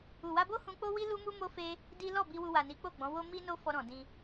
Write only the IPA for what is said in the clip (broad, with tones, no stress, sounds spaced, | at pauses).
u˨ w a˧ b o˦ h ũ˧ k͡p o˦ w i˦ l u˦ m u˦ m o˦ f e˦ | d i˦ l ɔ˦˨ b i˧ w u˧ w a˨ n i˨˦ k͡p o˦˨ ɡ͡b ɔ̃˨˦ w o˦ m i˦ n o˦ f ɔ˧ ɾ ɔ̃˨ d ĩ˧